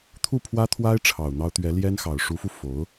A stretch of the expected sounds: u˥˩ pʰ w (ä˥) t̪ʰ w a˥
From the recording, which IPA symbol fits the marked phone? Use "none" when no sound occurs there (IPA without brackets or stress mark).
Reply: ä˥